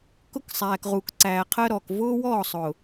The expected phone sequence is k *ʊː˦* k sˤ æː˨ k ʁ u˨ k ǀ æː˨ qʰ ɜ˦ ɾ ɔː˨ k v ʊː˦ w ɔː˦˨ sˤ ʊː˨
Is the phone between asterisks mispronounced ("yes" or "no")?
yes